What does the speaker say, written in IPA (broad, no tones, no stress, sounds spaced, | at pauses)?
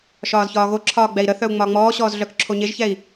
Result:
ʃ ɒː z ç ɒː ɣ o ǁʰ ɒː ɡ͡b ɛ i̯ ɾ ə θ œ u̯ ŋ͡m ɒː ŋ͡m ɔː ɕ ɔː z ɮ œ k ǁʰ o ɲ e ʒ ç ɛ i̯